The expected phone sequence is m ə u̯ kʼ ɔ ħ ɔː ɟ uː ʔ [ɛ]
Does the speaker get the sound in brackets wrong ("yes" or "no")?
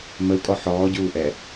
no